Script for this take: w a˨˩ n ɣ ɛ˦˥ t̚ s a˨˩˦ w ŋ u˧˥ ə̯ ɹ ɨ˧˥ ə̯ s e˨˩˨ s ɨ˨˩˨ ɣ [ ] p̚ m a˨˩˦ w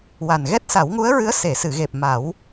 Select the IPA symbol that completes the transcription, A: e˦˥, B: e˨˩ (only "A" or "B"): B